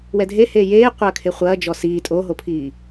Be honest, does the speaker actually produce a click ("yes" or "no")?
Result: no